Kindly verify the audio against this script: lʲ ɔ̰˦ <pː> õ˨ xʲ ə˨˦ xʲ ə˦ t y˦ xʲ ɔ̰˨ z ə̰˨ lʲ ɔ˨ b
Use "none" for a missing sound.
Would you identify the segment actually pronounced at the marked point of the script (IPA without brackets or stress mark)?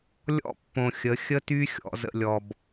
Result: pː